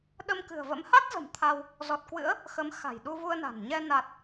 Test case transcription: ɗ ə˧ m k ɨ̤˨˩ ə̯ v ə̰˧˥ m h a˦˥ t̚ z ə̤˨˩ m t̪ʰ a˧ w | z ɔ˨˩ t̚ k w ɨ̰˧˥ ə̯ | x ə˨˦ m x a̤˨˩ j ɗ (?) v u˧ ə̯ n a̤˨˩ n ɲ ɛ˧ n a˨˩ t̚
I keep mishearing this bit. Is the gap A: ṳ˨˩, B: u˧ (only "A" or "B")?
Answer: B